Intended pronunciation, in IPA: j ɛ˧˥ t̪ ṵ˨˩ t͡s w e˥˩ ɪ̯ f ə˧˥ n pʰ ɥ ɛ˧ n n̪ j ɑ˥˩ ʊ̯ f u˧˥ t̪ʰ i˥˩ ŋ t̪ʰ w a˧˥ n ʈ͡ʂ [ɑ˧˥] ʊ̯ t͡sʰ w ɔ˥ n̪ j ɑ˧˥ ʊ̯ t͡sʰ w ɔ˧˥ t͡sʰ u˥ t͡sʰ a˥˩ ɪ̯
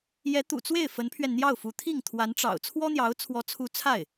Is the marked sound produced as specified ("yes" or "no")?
no